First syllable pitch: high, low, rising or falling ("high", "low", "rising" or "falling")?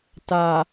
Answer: low